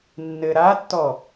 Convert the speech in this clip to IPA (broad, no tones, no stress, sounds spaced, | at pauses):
nː ɘ ɾ a tː ɔ